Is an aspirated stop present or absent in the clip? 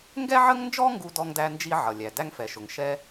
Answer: absent